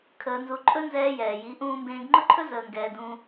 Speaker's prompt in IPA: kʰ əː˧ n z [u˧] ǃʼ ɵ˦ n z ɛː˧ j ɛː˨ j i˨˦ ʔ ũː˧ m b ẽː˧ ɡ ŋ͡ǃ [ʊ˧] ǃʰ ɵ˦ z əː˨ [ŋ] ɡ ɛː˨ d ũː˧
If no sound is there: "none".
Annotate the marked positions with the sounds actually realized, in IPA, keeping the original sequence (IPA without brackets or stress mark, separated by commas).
u˧, ʊ˦, ŋ